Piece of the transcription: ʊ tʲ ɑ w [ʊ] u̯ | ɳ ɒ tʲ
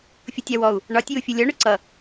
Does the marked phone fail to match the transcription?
yes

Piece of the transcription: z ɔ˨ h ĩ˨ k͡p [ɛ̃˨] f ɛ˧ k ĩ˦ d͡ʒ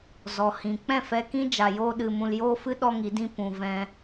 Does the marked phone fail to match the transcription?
yes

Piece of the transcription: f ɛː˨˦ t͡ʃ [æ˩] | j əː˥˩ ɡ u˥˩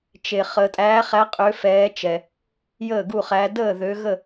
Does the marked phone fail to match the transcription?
yes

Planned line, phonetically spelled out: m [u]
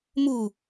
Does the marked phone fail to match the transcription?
no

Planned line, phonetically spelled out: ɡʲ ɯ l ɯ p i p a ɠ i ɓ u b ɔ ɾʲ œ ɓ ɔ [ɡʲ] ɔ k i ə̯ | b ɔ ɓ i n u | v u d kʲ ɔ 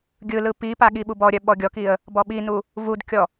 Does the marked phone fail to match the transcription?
no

